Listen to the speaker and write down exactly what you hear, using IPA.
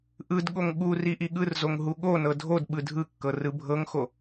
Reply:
ʔɯdɠoŋ ɠu riʔiɠɯrzoŋ ɦuɠonɤ dʱodɓɯ dʱɯkːɤ rɯbʱɤŋxo

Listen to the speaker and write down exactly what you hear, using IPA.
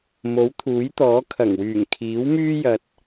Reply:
mo˨˥wt̪ʰuː˨˥jt̪ɔː˨˥ kʰɐ˨˩ŋwyː˨˩ŋ kʰiː˨˥wmyː˥jɐ˧t̚

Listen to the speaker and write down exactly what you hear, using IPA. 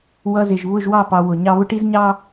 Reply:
wʌ˧zɪ˨ʒ βʊ˦˨ʒwɑ˦˨pɑ˨ wʊ˨ɲɑ˦ βʊ˦ʈi˦zɲɑ˦

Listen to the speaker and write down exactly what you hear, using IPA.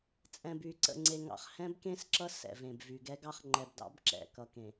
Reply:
t͡sʼɛ̃˨by˨ ǀə̰˨ŋ͡ǀe˨ŋɑ̰˨χ hɛ̃˦bkẽ˦sǁʌ˦ sɛ̰˨vẽ˨bvy˨ɡɛ˦ ɡɑ˦χŋ͡ǃɛ˨bdɑ̰˦b ǁɛ̰˨kʌ˨kẽ˨

